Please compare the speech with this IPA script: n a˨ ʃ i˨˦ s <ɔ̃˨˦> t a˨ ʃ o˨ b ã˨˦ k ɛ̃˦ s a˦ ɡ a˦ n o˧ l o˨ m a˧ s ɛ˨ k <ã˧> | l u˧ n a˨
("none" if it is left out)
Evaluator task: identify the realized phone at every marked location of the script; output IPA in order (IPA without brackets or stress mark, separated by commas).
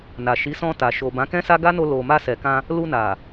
ɔ̃˧, ã˧